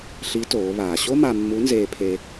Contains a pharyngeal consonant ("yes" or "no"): no